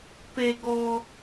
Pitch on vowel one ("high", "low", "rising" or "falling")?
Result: low